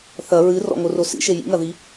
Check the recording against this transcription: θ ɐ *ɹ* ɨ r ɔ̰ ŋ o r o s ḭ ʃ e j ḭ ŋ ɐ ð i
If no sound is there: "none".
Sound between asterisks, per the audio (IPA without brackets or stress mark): ɹ